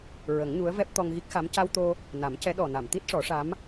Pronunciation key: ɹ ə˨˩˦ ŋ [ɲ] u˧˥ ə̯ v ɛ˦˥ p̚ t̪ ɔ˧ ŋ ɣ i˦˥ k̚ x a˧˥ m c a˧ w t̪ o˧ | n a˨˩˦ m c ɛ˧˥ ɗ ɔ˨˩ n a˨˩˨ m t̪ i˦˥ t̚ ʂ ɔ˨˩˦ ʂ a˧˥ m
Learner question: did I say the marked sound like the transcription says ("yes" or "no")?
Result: yes